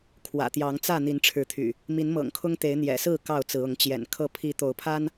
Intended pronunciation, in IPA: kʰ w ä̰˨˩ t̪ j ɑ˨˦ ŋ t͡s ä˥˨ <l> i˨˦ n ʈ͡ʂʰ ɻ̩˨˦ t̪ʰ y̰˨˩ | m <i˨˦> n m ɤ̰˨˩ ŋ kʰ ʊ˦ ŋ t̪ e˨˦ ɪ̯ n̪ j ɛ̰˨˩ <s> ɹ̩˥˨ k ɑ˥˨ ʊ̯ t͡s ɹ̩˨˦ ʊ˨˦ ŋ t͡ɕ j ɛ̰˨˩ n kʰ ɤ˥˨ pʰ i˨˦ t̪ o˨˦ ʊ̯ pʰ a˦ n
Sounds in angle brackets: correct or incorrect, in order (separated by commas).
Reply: incorrect, correct, correct